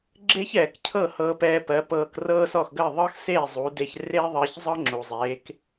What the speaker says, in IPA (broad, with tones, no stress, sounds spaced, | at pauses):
ɡ͡ǁ e˥ ç ɛː˩ k cʰ ɤ˥˩ h ɤː˧ p ɛː˧ p ɜ˩˥ p ɤː˧ k r ɤː˥ s ɔ˥˩ x ɡ ɜ˥˩ ðˤ ɤ˥ x s eː˥˩ zˤ u˩˥ d e˧ ç r e˥ ðˤ ɜ˧ ç zˤ ɤ˥ ŋ͡ǁ u˩ zˤ eː˩˥ k